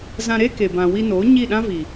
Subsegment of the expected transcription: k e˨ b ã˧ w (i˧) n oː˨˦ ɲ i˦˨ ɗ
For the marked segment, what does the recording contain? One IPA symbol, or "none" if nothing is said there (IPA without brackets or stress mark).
i˧